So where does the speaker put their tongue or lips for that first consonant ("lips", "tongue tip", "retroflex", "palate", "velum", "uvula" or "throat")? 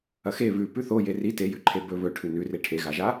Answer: velum